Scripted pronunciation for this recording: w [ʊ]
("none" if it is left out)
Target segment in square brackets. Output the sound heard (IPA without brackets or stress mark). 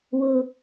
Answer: ʊ